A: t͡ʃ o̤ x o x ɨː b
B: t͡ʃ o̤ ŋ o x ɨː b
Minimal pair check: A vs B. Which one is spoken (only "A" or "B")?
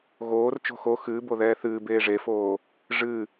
A